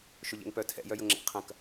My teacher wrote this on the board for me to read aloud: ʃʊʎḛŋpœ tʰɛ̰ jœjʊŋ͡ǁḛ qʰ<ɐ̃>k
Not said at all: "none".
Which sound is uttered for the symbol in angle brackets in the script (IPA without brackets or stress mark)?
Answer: ɐ̃